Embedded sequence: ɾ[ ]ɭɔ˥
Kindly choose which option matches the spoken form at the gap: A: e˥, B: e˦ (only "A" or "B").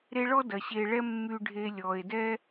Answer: B